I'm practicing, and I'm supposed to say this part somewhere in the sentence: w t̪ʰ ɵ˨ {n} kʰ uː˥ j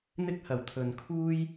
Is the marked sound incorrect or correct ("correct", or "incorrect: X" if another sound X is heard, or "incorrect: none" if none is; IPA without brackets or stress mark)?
correct